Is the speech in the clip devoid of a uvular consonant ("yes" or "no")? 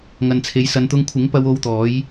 yes